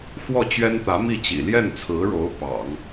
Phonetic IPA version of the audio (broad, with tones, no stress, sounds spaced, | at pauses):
x w ɔ˥˩ t͡ɕ ɥ ɛ˥ n t̪ ä˧˥ m i˥˩ t͡ɕ ḭ˨˩ l j ɛ˥˩ n t͡sʰ ɹ̩˧˥ ɻ o˧˥ ʊ̯ p ɑ̰˨˩˦ ŋ